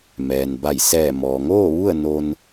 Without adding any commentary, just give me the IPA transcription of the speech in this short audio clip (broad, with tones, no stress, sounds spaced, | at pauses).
m ɛː˩ n b a˧˩ j s ɛː˧˩ m ɔː˩ ŋ oː˥˨ ʋ u˥˨ ə̯ n o˧ n